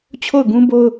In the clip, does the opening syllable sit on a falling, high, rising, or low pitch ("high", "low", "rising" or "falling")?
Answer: falling